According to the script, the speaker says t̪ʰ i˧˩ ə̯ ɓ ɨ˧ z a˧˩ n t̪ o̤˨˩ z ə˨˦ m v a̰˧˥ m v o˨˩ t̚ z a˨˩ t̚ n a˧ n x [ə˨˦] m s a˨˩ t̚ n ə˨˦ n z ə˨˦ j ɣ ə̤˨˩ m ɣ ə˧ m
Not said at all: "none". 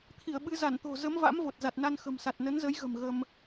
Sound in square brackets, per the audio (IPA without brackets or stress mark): ə̤˨˩